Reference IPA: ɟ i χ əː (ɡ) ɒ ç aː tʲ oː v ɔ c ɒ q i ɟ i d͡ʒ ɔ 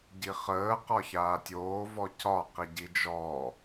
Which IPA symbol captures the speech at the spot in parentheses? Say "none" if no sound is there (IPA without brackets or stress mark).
q